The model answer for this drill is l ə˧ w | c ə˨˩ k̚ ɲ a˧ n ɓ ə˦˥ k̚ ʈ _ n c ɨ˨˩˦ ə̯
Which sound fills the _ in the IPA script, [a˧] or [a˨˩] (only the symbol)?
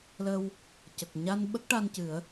a˧